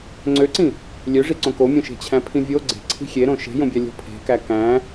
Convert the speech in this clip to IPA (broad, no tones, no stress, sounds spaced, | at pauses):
ŋ͡ǀ ø ǀ ĩ | lʲ ø ʐ i ǀ õ k o mʲ õ ʃ e̤ t͡ɕʰ æ̃ pʰ ĩ vʲ o ɡ͡ǀ e̤ ǀʰ i̤ xʲ e ɾ õ ʃ e̤ j õ bʲ æ lʲ o̤ pʰ e̤ k æ k æ̃